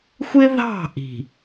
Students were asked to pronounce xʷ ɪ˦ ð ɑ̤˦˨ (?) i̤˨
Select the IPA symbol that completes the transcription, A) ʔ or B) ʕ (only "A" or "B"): A